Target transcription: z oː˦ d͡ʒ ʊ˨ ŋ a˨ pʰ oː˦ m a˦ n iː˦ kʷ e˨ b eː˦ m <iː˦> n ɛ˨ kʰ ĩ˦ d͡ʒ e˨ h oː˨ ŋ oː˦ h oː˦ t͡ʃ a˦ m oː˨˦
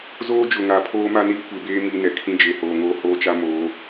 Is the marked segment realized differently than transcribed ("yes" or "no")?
no